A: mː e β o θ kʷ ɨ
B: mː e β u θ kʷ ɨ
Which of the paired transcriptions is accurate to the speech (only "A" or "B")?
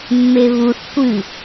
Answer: B